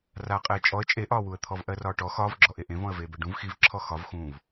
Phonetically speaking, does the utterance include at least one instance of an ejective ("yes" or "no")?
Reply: yes